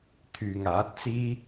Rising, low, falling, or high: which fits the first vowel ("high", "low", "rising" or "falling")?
low